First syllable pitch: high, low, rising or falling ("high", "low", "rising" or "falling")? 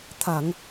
low